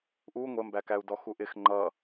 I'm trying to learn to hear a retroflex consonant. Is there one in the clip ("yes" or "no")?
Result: no